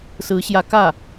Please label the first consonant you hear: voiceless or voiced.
voiceless